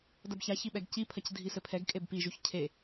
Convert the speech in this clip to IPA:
d ɐ b ç a ç i ɓ ɛ ɡ c i pʰ ɐ c dʱ i s ɘ pʰ ɛ ɡ kʼ e b p i ʒ u ç cʰ e

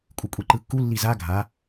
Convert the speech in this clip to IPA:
kʷʼ ɯ kʷʼ i ǃ ɯ kː u lː i z a ɡʱ a

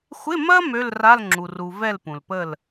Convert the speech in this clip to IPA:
xʷ ɪ˧˥˧ m ɐ˥ m ø˧˥˧ l r a˧˥˧ l ŋ͡ǁ u˩ r u˩ v ɛ˥˨ l p ũ˩ l p ə˥˨ l

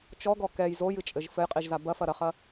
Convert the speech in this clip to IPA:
t͡ʃ ɔ ɡ ɔ k ɛ j z o j ɨ t͡ʃʼ ɘ ʒ f ɘ j qʼ i ʒ z a b ɐ f ɐ ɾ ɐ χ ɐ

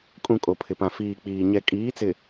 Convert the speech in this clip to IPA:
kʼ ũ˨ kʼ o˨ pʰ ɪ˨ p ã˨ f iː˨ k͡p iː˨ ɲ ɛ˨ kʼ iː˨˦ t͡s ɪ˨

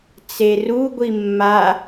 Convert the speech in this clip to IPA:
t͡s e r u ɡʷ i mː a

